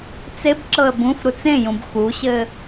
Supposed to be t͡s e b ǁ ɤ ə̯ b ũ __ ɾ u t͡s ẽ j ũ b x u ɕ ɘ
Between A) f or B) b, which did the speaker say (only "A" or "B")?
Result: A